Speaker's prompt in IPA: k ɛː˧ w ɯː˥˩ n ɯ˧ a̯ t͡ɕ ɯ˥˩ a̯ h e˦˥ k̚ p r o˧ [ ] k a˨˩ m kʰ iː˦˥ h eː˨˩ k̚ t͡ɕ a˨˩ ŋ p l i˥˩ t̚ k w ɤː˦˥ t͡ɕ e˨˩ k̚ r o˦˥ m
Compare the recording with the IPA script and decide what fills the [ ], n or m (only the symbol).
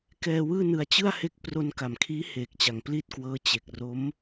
n